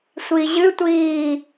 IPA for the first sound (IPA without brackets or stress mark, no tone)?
sʷ